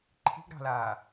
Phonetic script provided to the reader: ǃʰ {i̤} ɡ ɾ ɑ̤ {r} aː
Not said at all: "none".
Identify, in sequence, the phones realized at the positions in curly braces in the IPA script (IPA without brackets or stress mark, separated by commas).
i̤, l